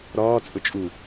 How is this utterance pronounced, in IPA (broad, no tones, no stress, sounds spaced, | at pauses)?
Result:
ɾ ɒː t͡sʼ ʊ t͡ʃʼ u